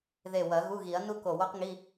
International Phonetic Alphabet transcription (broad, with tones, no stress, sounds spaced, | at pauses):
ð e˧˩ w ɐ˨˩˦ ɣ u˧˥˧ ɣ i˨˩˦ ɐ̯ n u˥ k o˧˩ w o˥ q ŋ i˧˥˧